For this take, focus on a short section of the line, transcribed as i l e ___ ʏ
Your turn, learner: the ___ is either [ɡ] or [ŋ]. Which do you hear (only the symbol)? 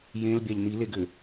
ɡ